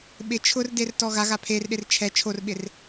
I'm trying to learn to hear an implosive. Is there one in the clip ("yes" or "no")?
yes